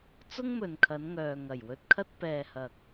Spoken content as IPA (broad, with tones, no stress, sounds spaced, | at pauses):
t͡s ʊ˥ ŋ m ɵ˨ n kʰ ɐ˨˧ n ŋ œː˨ ŋ ɐ˨˩ j w ɵ˧ t̚ kʰ ɐ˥ t̚ p ɛː˨ h ɐ˨ k̚